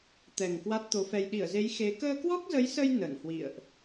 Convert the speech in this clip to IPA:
t̪ ɛ˨˩ ŋ k w a˦˥ t̚ t̪ o˨˦ f ɛ˧ j ɗ i˧˩ ə̯ z e˨˦ j x e˨˦ k əː˧ k w ɔ˦˥ k̚ z ə˨˦ j s ə˧ j n ə˧˩ n h w ḭ˧˨ ə̯ ʔ

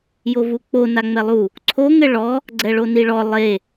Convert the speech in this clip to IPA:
j o v u k͡p o n a ŋ͡m ɛ lˠ u | ǀʰ o ŋ ɘ ɭ ɔ | ɡ͡ǀ ɛ ɭ o n i ɭ ɔ lˠ e

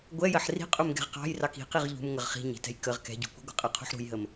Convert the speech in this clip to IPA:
ɡʷ ɛ j ɜ ħ r i̤ qʼ u m ɡ ɛ̤ ʁ q ɑ̤ j r ɑ k i̤ q i ʁ ʎ ṳ m ŋ ə ʁ χ i̤ ɲ i̤ t ɛ̤ j k ə ʁ k ɛ̤ ɟ ṳ kʷ i̤ ɡʷ ə̤ qʼ ɜ qʰ ṳ ħ ɾ ṳ j ɦ ə m

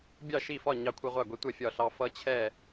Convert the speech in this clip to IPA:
bʲ ɑ˥˨ ʃ i˥˨ f ɒ˥˨ ɲ ɑ˦ kʷʰ ɛ˦ ʁʷ a˥˨ ɡʷ i˦ tʷ ɛ˥˨ fʲ ɒ˥˨ ɬ ɑ˦ f ʌ˦ t͡ɕʰ ɛ˥˨

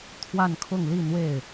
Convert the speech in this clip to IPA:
t̪ʰ w a˥˧ n kʰ ʊ˥˧ ŋ l i˥˧ n̪ w e˥˩ ɪ̯

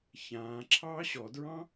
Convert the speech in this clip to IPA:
ç ãː ǁʰ ɑː ɕ ɔ d ɹ ɑ̃

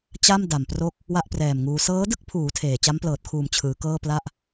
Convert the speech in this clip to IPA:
t͡ɕ a˥˩ m d a˨˩ m p r o˥˩ k̚ | w a˥˩ ʔ p r ɛː˨˩ m ŋ uː˧ s ɤː˦˥ d ɯ˥˩ k̚ pʰ uː˩˦ tʰ eː˨˩ t͡ɕ a˦˥ m p l ɤː˨˩ t̚ kʰ uː˨˩ m t͡ɕʰ ɯː˩˦ k ɤː˥˩ p l a˥˩ ʔ

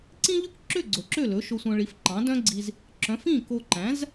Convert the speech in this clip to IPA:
ǀ ĩ˥ ʎ ʉ˥ k ǁ ø˥˩ ɡ͡ǀ ɵ˩ ǁ ø˥˩ l ɵ˩˥ ʃ o˧ sʷ œ̃˧ ɭ i˩˥ f ǃ ɑ̃˩˥ d œ̃˥ ɡ͡ǀ i˧ z | ǁ œ̃˩˥ f ĩ˥˩ k o˧ ǃ æ̃˩˥ z

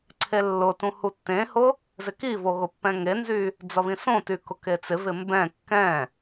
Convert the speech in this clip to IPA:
ǀʰ e lː ʊ t ũ h u tː ẽ h ʊ | z ɪ k i v o ɣ ʊ pː ɛ̃ ŋ e n z y | d͡z ʌ β ĩ s õ t y k ʊ k e t͡s ɪ v ɪ m b ɛ̃ kː ɛ̃

